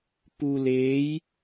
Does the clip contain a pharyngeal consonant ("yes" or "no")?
no